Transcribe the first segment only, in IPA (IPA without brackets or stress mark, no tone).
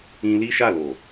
ĩ